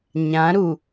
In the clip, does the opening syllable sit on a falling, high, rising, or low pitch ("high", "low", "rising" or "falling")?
rising